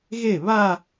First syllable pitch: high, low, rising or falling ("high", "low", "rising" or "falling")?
falling